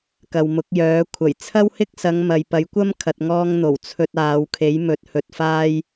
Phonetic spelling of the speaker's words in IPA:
k ɐ˨ w m ʊ˨˥ k̚ j œː˨˥ kʷʰ ɐ˨˩ j t͡sʰ ɐ˥ w h ɪ˥ k̚ s ɐ˨˧ ŋ m ɐ˨ j p ɐ˨˥ j kʷ ɐ˥ m kʰ ɐ˨ t̚ ŋ ɔː˧ ŋ n̪ o˨˩ w t͡sʰ ɵ˧ t̚ aː˨˧ w kʰ e˨˥ j m ɵ˨˥ t̚ h ɵ˨ t̚ f aː˧ j

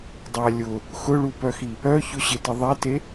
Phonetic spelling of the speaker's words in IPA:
dˤ a lʲ ʊ | x ʊ ɭ u p œ x i | œ ç ʊ ɕ ɪ t ɪ ðˤ ɛ t e

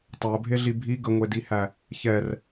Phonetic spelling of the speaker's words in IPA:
tˤ æ ə̯ bʱ e ɮ i bʱ i ɡ ə ŋʷ e d i h æ | ç ɛ r

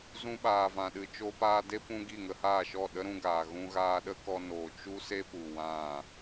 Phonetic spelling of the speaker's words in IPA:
z ũ˧ ɓ aː˨ v ã˨ ɗ ɨ˨ t͡ʃ o˧ p aː˧ d e˦ p ũ˧ ɡ i˦˨ ŋ ə˧ h aː˦˨ ʃ ɔ˦˨ ɗ ə˦ ɾ ũ˧ ɡ aː˨ ɣ ũ˧ ɣ aː˧ ɗ ə˦ k ɔ˧ n oː˨ t͡ʃ u˦ s e˦ p u˨ w ã˦˨

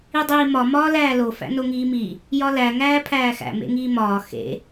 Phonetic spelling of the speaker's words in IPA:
i dˤ iː m ɒ m ɒː l æː l o f æ̰ n o ŋ iː m i | j ɒ l æ ŋ æː pʰ æː x æ̰ m ḛ ŋ iː m ɒː x ḛ

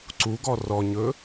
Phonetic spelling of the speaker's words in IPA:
ǀ u ɡ ɔ r ɔ ɲ ɵ

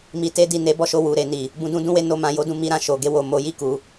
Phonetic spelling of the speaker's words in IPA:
m i˨ t e˧ d i˨ n e˨˦ b ɔ˦˨ ʃ o˧ w u˨ ɾ e˧ n i˨ | b ũ˧ d ũ˦ d ũ˦ w e˦ n o˦ m ã˧ j o˦ d ũ˦ m i˧ ɾ ã˨ ʃ o˨ ɡ e˧ w o˨ m o˨˦ j i˦˨ k u˨˦

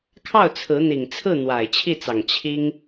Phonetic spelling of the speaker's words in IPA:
kʰ ɑ˥˩ ʊ̯ t͡sʰ ɹ̩˧˥ n̪ i˨˩ ŋ t͡sʰ ɹ̩˥˩ n̪ w a˨˩ ɪ̯ t͡ɕʰ i˥˩ t͡s ɑ˨˩ ŋ t͡ɕʰ i˥ ŋ

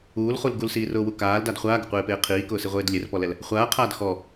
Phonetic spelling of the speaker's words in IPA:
uː l χ u l ɡ u l s iː r ʊː w u k aː l d a d χʷ aː ɡ ʊ qʷ eː p eː qʰ iː k ʊː s i ʁʷ eː d lʲ e r p ɔ l ɛ l | χʷ aː qʰ aː d x ɔ

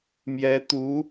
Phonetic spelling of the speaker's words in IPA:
m j ɛ˧˥ t̪ u˧˥

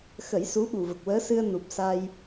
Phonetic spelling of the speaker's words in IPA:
x ə˨˩˦ j s u˧˥ ɓ u˨˩ v ə˨˩ k̚ w əː˧˥ s ɨ˧ ə̯ n u˨˩ p̚ s a˧ j

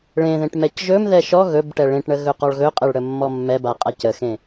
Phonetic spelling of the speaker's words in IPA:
ɭ ẽ ð ẽ ʈ m ɛ c ʒ ɵ m ð ɛ ʃ ɔ ɣ ɵ b ʈ ɛ ɭ ẽ ʈ ɳ ə ɣ ɵ q ɔ ɭ ɣ ɵ qʼ ɛ ɭ ɽ ə mː ɔ mː ɛ b a qʼ a c ə x ẽ

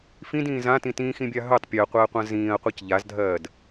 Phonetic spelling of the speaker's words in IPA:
f ĩ d ĩː z ã t ĩ t ĩː x ĩ bʲ a ɦ ɵ tˤ pʲ ɜ qʷ ɜː qʷ ã z ĩː ɐ̯ qʷ a c ʎ a z dʱ ɜː d

